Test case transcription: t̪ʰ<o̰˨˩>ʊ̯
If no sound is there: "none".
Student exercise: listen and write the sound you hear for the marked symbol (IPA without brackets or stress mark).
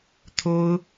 o˥